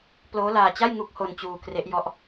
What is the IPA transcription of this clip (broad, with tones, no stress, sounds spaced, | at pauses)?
p l oː˦˥ l aː˧ t͡ɕ a˥˩ j ŋ u˦˥ k̚ h o˧ n t͡ɕ uː˧ k r e˦˥ ʔ j ɔ˦˥ ʔ